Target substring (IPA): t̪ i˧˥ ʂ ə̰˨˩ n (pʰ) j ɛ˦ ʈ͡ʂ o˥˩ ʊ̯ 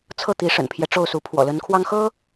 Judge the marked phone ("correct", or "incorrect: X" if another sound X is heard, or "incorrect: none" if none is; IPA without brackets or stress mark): correct